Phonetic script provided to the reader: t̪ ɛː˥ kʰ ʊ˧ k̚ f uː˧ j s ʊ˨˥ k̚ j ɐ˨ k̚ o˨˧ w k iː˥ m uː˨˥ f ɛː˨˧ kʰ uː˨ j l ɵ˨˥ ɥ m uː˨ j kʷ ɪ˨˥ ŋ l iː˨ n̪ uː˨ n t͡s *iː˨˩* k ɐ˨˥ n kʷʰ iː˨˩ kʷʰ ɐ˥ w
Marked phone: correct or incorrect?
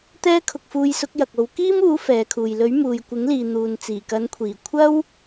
correct